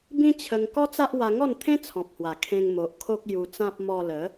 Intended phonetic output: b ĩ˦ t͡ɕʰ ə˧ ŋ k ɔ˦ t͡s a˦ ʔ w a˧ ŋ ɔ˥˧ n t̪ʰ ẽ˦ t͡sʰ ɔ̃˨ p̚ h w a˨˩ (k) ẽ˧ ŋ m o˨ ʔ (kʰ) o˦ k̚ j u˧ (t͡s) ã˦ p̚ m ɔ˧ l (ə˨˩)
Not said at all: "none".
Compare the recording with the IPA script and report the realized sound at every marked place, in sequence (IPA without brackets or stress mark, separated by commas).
kʰ, kʰ, t͡s, ə˨˦